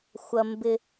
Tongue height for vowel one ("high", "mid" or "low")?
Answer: low